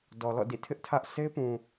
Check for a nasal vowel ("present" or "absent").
present